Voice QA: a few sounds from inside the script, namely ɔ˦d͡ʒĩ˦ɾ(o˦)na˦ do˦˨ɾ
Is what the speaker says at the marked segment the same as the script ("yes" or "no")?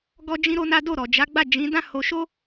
yes